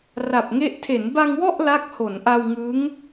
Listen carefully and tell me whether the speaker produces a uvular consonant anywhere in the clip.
no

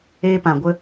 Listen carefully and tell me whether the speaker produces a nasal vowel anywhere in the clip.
yes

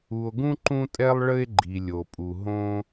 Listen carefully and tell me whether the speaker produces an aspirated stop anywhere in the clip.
no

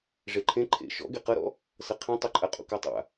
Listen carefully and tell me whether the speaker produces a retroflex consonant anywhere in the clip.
yes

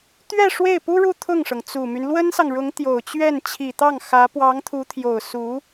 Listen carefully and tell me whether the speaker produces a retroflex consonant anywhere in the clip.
yes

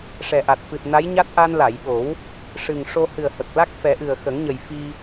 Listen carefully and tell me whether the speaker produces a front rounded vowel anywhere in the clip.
no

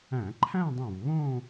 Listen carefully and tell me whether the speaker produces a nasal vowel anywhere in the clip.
yes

